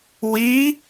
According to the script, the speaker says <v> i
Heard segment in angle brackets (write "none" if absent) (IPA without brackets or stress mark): w